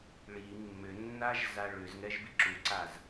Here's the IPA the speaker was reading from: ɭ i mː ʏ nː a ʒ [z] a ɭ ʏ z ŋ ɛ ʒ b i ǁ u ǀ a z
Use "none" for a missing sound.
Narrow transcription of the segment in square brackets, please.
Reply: z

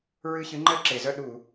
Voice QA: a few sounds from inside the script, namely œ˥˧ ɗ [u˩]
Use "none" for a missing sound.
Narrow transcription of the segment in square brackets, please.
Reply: u˧˩˧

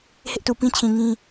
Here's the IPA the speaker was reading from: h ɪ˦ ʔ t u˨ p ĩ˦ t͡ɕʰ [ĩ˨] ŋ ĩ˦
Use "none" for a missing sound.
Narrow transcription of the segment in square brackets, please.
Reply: ĩ˨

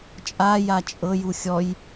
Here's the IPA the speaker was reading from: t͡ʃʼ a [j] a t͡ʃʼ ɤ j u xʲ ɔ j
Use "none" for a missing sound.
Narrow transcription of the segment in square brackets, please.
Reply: j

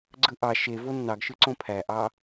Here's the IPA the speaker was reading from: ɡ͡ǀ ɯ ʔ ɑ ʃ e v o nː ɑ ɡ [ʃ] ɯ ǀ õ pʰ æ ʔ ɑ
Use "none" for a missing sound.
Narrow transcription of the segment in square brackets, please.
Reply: ʃ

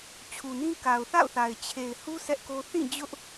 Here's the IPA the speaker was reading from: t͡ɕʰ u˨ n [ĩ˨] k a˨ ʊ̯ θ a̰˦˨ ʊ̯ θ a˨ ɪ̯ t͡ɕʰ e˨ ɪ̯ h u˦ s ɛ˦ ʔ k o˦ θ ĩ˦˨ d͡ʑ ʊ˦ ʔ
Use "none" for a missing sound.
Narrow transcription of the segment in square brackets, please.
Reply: ĩ˦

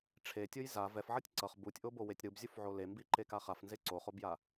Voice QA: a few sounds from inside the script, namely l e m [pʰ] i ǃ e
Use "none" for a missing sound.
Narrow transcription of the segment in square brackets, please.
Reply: b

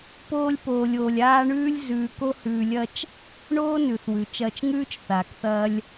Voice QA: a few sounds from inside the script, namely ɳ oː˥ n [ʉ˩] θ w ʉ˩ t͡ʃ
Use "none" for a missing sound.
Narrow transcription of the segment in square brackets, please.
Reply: ʉ˩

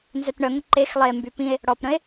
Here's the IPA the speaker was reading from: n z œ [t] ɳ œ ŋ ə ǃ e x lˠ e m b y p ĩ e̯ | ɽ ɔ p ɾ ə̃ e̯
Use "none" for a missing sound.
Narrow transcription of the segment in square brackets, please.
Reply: t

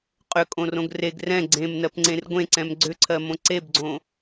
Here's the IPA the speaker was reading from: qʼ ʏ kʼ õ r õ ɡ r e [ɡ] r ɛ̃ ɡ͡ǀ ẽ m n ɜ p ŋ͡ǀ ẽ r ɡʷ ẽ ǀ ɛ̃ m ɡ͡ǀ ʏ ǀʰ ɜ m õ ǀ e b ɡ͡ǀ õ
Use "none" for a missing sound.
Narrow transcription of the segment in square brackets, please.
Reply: ɡ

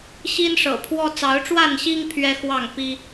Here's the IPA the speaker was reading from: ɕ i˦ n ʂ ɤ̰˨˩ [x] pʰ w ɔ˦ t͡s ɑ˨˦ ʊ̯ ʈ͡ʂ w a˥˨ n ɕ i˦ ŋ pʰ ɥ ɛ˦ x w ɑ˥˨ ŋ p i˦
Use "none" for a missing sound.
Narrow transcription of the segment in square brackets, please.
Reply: none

